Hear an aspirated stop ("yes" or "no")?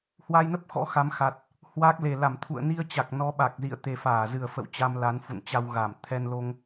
yes